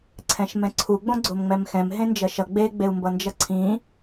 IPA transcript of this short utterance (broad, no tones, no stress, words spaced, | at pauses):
ǀʰɛ̃ʃmɛ̃ǀʰu ɡ͡bõɡ͡ǀomŋ͡mɛmxɛ̃m ɦẽnd͡ʒʌʃʌ ɡ͡be ɡ͡beu̯mbʌnd͡ʒʌǀʰĩ